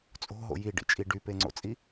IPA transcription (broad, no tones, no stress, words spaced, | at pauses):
t͡sʼo̤ɦo̰ jiɖḭt͡ʃʼi ɖypeŋ͡ǀo̰t͡sʼi